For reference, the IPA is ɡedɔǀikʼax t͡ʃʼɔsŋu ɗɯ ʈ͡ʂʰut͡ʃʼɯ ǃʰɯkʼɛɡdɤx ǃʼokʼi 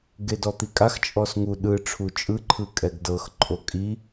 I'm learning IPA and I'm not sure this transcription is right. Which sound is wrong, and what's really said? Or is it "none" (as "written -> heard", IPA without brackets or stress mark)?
ǀ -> t̪